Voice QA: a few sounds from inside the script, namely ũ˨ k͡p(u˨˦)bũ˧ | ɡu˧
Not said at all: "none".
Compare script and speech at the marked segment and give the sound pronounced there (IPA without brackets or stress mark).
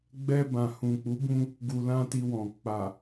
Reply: u˨˦